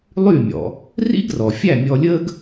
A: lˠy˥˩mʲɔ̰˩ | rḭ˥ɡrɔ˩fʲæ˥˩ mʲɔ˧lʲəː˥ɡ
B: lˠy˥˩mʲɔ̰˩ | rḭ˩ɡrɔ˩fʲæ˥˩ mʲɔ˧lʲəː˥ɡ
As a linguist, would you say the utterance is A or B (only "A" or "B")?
A